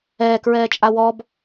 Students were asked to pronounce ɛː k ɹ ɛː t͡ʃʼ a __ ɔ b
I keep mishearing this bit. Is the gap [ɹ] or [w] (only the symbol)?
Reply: w